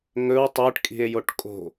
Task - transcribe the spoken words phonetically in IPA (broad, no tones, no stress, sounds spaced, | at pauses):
ŋ ɵ w tˤ ə˞ ʈ kʼ i̤ e̯ j o ʈ kʼ o̤